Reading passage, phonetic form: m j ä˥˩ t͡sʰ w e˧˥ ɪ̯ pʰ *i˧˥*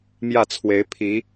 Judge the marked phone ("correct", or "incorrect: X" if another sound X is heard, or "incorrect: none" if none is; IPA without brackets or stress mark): correct